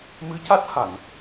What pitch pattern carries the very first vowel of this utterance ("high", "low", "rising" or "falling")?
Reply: rising